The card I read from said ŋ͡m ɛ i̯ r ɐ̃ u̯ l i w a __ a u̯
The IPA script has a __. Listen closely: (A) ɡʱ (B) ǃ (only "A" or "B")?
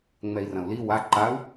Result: B